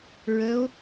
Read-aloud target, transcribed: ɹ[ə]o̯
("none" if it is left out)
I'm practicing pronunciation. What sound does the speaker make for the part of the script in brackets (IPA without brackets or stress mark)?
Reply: ə